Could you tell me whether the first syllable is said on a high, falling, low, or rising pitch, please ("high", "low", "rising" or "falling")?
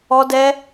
high